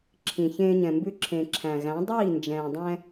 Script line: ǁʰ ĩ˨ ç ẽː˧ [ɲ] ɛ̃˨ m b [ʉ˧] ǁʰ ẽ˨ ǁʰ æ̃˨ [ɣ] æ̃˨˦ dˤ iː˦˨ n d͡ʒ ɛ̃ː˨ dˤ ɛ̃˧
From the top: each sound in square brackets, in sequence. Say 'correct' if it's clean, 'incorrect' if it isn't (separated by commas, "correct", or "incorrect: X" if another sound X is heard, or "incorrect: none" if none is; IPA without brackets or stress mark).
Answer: correct, correct, correct